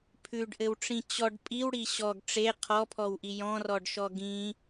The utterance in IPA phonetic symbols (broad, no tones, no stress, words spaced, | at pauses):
pʰʉɖʔɘwʈ͡ʂĩ t͡ɕɔɖ pʼiwɽi ɕɔɡ ʈ͡ʂe qʰɔpʰɔwʔi jɔ̃rɔɖʃɔ ɡĩ